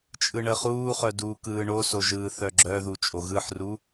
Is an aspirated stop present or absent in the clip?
absent